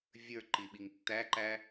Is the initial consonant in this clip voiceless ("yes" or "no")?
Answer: no